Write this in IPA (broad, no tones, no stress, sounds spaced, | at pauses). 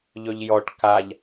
ʎ ɵ ʎ j ɔ ʈ k a ʎ